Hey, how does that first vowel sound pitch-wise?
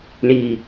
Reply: low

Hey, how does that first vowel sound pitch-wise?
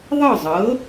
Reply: falling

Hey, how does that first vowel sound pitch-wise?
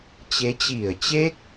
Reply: rising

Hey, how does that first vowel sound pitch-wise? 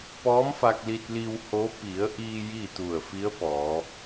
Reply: rising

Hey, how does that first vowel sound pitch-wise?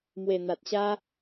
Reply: low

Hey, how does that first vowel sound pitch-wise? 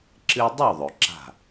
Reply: high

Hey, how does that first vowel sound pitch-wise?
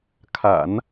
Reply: low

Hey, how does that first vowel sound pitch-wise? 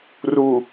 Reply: low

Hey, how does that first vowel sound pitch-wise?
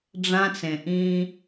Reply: high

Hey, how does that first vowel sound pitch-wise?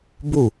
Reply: falling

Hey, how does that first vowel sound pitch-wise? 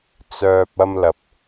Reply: low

